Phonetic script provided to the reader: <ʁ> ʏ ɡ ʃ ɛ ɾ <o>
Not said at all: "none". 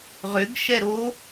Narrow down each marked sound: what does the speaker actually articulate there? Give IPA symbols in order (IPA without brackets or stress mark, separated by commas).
ʁ, o